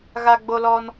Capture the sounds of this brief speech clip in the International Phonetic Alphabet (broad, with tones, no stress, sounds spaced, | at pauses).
ɣ a˦ ɡ͡b o˦ l ɔ˦ n